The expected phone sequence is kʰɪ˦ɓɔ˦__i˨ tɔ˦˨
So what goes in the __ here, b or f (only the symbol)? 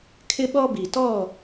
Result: b